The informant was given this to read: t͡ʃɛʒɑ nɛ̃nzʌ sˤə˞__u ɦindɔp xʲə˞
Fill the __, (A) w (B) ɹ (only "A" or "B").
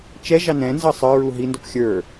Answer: B